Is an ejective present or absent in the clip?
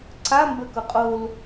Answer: present